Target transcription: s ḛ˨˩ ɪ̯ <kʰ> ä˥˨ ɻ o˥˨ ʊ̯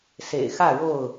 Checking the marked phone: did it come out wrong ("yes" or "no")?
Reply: yes